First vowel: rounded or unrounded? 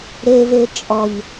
unrounded